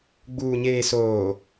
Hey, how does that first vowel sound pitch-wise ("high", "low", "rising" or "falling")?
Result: low